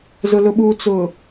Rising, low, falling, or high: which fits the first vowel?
low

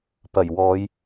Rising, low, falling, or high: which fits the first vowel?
low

